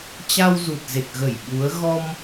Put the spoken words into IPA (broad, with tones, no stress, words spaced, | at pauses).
t͡ɕa˧wzu˨˩t̚ze˨˩k̚ɣə˧˩j ɓu˨˦ə̯ ɣɔ˧m